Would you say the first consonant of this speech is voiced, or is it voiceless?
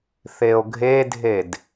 voiceless